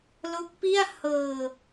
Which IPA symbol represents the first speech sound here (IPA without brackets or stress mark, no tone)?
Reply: l